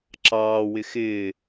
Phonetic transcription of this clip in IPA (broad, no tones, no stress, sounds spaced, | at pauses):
ǁ ɑː w ɪ x ɪː